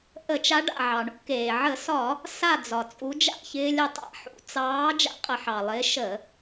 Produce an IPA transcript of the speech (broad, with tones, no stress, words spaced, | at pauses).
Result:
ʔə˧˩˧t͡ʃa˨˦ɖa̰˩ ʕɑ˩ɳṵ˦keː˩ ʕə˧˩˧sɒ˧˩˧ | sa˦˨ d͡zɒ˩t͡sʼu˨˦ d͡ʒa̰˦˨çɪː˦lʲə˦˨tˤa̰˧˩˧ ħṵ˨˦ t͡sɑː˨˦ d͡ʒa̰˦qʼə˧˩˧ħɑ˩lˠɪː˨˦ ʃə˧˩˧